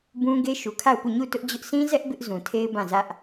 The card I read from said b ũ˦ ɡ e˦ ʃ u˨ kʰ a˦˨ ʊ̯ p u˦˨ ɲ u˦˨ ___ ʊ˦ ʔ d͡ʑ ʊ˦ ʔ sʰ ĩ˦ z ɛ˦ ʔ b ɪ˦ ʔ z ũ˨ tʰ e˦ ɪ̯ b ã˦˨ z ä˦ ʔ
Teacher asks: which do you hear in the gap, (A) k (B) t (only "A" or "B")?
B